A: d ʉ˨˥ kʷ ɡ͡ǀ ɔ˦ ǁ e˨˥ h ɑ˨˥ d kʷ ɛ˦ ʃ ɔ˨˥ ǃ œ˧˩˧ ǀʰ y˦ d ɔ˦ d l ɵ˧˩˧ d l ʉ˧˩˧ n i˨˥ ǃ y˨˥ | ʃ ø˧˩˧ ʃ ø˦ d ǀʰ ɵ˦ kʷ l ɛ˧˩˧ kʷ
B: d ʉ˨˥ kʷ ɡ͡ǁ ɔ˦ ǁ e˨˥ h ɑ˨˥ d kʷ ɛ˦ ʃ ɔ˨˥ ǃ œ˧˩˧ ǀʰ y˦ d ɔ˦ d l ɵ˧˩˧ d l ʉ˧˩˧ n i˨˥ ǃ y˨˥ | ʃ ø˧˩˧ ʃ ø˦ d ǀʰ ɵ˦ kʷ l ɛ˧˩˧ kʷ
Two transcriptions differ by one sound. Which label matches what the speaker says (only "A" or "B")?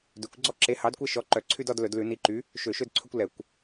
A